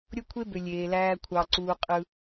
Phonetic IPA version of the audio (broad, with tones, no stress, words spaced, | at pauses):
ɾʲo˦kʷʰe˦bø˨ lʲeː˨læː˦ kʷʰɑ˨ ǀuː˦ qʼɯ˦